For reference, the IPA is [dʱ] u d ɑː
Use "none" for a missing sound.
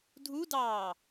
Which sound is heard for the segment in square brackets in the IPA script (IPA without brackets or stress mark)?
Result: dʱ